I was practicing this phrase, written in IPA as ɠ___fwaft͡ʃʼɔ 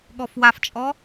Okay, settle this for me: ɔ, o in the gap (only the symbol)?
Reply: ɔ